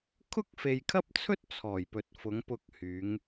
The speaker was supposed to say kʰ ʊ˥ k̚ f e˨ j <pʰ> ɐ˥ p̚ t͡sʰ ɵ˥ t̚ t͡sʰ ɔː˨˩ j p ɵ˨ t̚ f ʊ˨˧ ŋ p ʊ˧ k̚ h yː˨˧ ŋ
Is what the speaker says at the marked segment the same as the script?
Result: no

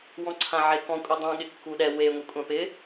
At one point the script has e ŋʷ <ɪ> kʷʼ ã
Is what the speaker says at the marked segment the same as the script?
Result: yes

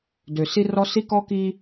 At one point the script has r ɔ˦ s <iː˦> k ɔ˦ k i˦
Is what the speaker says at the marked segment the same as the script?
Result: no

